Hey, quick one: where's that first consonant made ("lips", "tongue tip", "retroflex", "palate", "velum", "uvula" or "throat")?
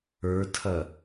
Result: tongue tip